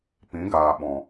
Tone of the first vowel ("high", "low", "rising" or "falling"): rising